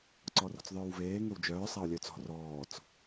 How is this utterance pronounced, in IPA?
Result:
ǀ ɔ r ɔ̤ t͡s ðˤ œː w v eː ŋ ø w d͡ʒ œː sˤ a ʊ̯ lʲ œ t͡s ɔ̤ r ɔː t͡s

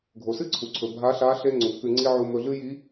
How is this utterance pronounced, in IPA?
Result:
ɡʱ o˩ s ɨ˥ ǀʰ u˩ ǀʰ ɵ˩ bʱ a˧˥ ɬ a˧˥ ɬ e˥ ŋ͡ǀ u˩˧ k ʉ˧ ŋ͡ǀ i˧ ʕ u˧ m ɵ˧ ɮ ɨ˥ j i˧˥

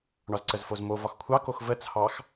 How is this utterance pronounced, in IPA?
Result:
ɳ ɒ z ǀ ə z f o z m o v ɒ x kʷʰ ɑ k o x v ə t͡sʰ ɑ x

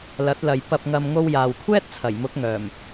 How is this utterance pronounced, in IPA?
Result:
l ɐ˨˥ t̚ l ɐ˨ j p ɐ˨ p̚ ŋ ɐ˨ m ŋ o˧ w j aː˨ w kʷʰ ɛː˥ t̚ t͡sʰ ɐ˨˩ j m ʊ˨˥ k̚ ŋ œː˨˩ m

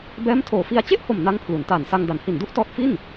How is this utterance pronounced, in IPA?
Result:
b ɛː˦˥ m tʰ oː˨˩ f i˧ a̯ t͡ɕ e˥˩ ʔ h o˨˩ m n a˦˥ ŋ pʰ l u˩˦ n t aː˨˩ n s a˧ ŋ d a˩˦ n h i˨˩ n d u˥˩ ʔ t ɔː˦˥ t̚ f i˥˩ n

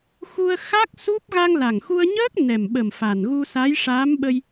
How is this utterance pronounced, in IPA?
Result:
x u˧ ə̯ x a˦˥ k̚ s u˦˥ p̚ ɣ a˧ ŋ l a˨˩ ŋ x u˧ ə̯ ɲ əː˦˥ k̚ n ɛ˨˩ m ɓ ə˨˩ m f a˨˩ n ɣ u˧ s a˧˥ j ʂ aː˧˥ m ɓ ə˧ j

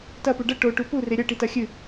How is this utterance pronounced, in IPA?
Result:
t ɐ p u ɖ ɐ ʈ o ʈ u p u r e ɾʲ ɐ ʈ i t ɐ xʲ ɨ

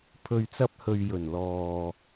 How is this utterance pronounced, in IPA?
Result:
pʰ ɵ˨ ɥ t͡s ɐ˧ p̚ h ɵ˨ ɥ j ɵ˨˩ n l ɔː˨

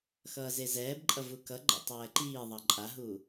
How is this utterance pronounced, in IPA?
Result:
x ʌː z e z ɛː b ǃʼ ʌ v u k ʌ ɡ͡ǃ ɛ̰ tˤ ɛː ǃ iː ðˤ ʌ ǃʼ a ɦ u

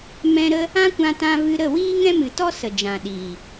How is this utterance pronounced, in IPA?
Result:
m ɛ̃˧ ɾ ə˦ | ã˦ kʷ ã˧ t ã˧ v ɨ˧ ɾ ə˦˨ w iː˦ ŋ ɛ̃˦ m ɨ˨ t ɔ˦ s ə˨ d͡ʒ ã˨ ɗ iː˨

